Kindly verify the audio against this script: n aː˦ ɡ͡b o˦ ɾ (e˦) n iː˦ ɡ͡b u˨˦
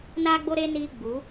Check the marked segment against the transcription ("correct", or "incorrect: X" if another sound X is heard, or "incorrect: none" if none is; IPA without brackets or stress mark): correct